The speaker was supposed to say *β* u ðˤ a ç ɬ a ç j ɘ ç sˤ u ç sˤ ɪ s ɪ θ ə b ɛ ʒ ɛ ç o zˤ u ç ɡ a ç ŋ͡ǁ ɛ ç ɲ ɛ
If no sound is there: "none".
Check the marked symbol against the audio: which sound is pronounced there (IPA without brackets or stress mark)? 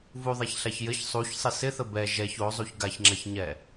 v